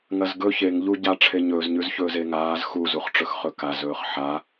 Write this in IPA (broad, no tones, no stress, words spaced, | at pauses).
ŋɐzɡɵ çeŋ ʎuɟa ʈ͡ʂʰeɲɵːzɲʉzçɵːz eŋaːz xuzuχʈ͡ʂɵx χɵkaz ɵːχħa